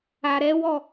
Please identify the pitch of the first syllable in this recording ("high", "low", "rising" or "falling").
low